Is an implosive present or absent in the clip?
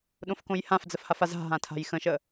present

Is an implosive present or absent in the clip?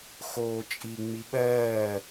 present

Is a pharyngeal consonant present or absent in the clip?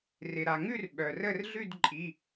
absent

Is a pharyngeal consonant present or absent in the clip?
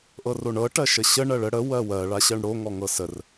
absent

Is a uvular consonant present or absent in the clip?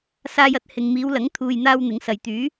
absent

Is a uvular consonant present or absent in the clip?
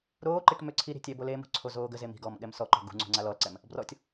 absent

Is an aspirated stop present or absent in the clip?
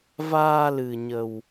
absent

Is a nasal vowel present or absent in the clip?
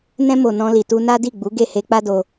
present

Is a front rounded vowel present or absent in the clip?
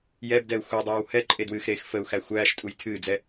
absent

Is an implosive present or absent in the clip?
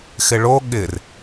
present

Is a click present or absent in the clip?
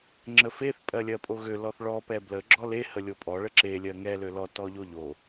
present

